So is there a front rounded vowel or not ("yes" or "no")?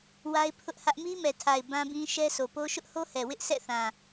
no